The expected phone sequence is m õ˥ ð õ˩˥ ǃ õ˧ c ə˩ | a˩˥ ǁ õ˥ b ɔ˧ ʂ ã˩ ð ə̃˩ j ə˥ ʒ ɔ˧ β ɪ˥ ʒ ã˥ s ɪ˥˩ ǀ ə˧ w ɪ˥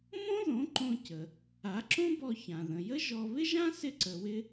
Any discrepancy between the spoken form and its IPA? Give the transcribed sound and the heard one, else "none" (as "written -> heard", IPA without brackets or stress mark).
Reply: ʂ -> ç